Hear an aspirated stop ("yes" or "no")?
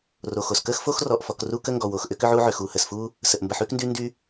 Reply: no